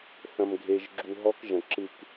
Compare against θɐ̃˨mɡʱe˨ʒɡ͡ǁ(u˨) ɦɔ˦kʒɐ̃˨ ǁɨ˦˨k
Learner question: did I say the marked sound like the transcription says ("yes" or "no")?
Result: yes